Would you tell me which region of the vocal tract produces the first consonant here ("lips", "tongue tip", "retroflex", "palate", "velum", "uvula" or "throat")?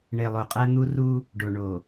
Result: retroflex